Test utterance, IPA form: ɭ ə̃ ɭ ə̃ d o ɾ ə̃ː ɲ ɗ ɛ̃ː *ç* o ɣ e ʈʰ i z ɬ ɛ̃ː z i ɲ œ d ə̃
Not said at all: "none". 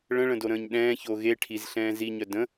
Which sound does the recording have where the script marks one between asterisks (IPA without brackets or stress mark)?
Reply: ç